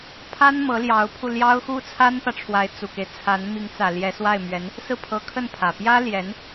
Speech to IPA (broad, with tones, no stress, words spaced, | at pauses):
pʰa˥n mɤ˧˥ljɑ˧˥ʊ̯pʰu˧ ljɑ˥ʊ̯ xu˥˩t͡sʰa˥npä˨ʈ͡ʂʰwa˧˥ɪ̯ t͡su˨˩ke˦ɪ̯ t͡sʰa˧˥n mi˧˥ŋt͡sä˨˩ ljɛ˧˥swa˥˩ɪ̯mɥɛ˧˥n | sɹ̩˥˩pʰɤ˧˥kʰə˥˩n pʰä˨˩ pjä˥ljɛ˧˥n